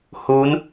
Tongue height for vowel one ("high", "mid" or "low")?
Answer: high